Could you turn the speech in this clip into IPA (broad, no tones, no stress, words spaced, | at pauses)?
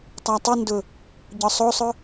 tˤatˤundʊ | ɟɒsˤosˤʊ